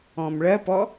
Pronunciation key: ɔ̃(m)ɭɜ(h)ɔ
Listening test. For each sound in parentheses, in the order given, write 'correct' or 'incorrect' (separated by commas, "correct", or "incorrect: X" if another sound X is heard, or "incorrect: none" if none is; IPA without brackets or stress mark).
correct, incorrect: p